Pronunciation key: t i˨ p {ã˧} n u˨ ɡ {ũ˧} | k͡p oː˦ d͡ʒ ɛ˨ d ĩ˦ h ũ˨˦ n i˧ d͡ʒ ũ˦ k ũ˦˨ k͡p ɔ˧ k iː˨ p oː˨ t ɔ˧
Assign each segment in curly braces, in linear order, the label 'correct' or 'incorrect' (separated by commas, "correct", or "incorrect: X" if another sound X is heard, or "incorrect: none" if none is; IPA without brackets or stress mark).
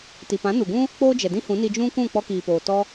incorrect: ã˨˦, incorrect: ũ˦